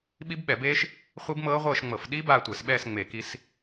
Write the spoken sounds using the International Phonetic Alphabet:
ɓ i˦˥ b ɓ ɛ˧˩˧ b eː˦˥ ʃ | χʷ i˦˥ b m ɤː˦˥ ʁʷ ɤː˥˧ ʃ ŋ͡m ɤ˧˩˧ f ɗ i˦˥ b aː˥˧ tʷ ɛ˧˩˧ s ɓ ɛː˥˧ s ŋ͡m e˧˩˧ k i˦˥ s

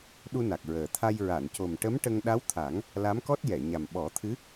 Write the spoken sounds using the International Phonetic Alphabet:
ɗ u˧ n a˨˩ k̚ ɹ əː˨˩ t̪ʰ a˧ j ɹ a˨˩˨ n c o˨˩ m ʈ ə˧˥ m ʈ ə˧ ŋ ɗ a˧˥ w t̪ʰ a˨˩˦ ŋ | l a˧˥ m k ɔ˦˥ t̚ j ɛ˨˩˨ ɲ a˨˩ m ɓ ɔ˨˩˦ t̪ʰ ɨ˧˥

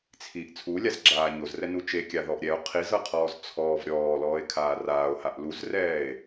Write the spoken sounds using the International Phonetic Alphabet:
t͡sʰ i ʔ t͡sʰ u lʲ a z ɡ͡ǁ aː ɲ o z r ɛ n u t͡ʃ e kʲ a ð ɔ ʔ ɾʲ ɛ o̯ qʰ i z ɤ qʰ ɔː z t͡sʰ ɔː v ɾʲ ɔː l ɔː e̯ kʰ aː r aː o̯ h a ʔ l u z r ɛː e̯

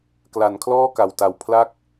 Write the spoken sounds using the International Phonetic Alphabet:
k l a˨˩ n kʰ l ɔː˥˩ k a˨˩ w t a˨˩ w pʰ l a˥˩ k̚

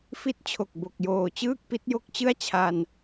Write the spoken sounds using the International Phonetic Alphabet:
f i˦˥ t̚ t͡ɕʰ o˨˩ k̚ b o˨˩ k̚ j oː˨˩ t͡ɕ ɯː˥˩ k̚ p i˦˥ t̚ j o˦˥ k̚ t͡ɕ ɯ˥˩ a̯ t͡ɕʰ a˧ n

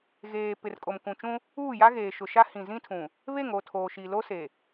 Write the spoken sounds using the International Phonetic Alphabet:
ɣ eː˨ p ɪ˨ r kʼ o˨ m k ũ˨ t͡ʃ ũ˦ | uː˦˨ j a˦ ɣ eː˨ ʃ ʊ˨ ʃ a˦ h ĩ˨ z ĩ˦ tʰ ũ˨ | β e˦˨ ŋ o˦˨ tʰ oː˨ ʃ i˨ l o˦ s e˨

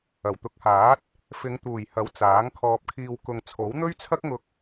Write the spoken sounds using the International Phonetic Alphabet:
ɐ˨˩ w t̪ ʊ˨˥ k̚ h aː˨˥ t̚ | f ɪ˨˧ ŋ t̪ uː˨˩ j h ɐ˨˥ w t͡s aː˨˥ ŋ kʰ ɔː˧ p̚ kʰ iː˧ w k ʊ˨ ŋ t͡sʰ o˨˥ w n̪ ɵ˥ ɥ t͡sʰ ɐ˥ k̚ ŋ ʊ˧ k̚

